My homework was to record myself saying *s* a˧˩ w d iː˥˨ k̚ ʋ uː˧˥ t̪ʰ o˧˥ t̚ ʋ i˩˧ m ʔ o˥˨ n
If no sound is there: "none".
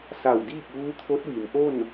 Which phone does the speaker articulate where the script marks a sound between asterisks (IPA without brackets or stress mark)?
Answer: s